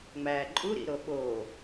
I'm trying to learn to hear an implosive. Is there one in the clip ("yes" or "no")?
yes